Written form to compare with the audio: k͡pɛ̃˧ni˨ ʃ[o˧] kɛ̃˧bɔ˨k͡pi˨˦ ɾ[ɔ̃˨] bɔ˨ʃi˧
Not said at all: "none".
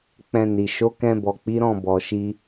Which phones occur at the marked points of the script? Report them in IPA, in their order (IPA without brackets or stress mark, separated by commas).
o˨˦, ɔ̃˦˨